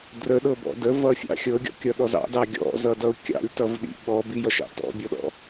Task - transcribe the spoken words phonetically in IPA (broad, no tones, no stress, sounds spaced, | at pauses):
d r ə ɗ ɤ b ɔ̰ d ə v ʌ fʲ ɑ̰ xʲ ɤ ɡʲ ɔ̰ kʲ ʌ ɗ ɔ z ɑ̰ d ɑ ɡʲ ɔ̰ z ʌ d ʌ ʊ̯ kʲ ɑ̰ lʲ t ʌ v ɗ ḭ ɓ ɔ b i j ʌ ʃ ɑ̰ t ɔ̰ bʲ ɔ ɗ ɔ̰